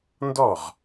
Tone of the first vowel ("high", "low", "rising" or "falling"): falling